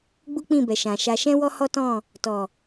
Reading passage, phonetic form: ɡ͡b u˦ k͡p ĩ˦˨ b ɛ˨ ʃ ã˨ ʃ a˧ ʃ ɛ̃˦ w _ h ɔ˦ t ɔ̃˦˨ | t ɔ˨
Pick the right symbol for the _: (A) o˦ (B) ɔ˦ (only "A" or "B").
B